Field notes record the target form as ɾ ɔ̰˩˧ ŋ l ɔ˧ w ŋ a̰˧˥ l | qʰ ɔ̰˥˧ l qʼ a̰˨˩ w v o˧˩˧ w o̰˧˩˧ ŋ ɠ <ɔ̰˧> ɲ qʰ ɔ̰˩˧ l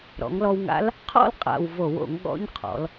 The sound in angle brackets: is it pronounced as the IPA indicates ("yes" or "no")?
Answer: no